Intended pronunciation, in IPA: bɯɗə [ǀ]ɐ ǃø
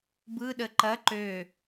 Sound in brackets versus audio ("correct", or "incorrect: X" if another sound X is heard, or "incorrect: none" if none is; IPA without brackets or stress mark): incorrect: ǃ